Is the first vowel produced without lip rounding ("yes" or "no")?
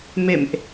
yes